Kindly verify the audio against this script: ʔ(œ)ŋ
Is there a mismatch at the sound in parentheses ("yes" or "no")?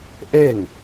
yes